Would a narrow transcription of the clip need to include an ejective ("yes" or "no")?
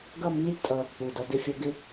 yes